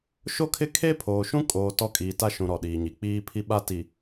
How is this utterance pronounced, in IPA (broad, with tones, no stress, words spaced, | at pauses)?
ʃo˦kʰɪ˦ kʰe˦pʰoː˨ ʃũ˦kʼoː˨ tɔ˦˨kʼiː˨ta˦ʃũ˨ ɾɔ˨ɗiː˨ɲi˨ k͡piː˦ pʰi˦ɓa˦ ti˨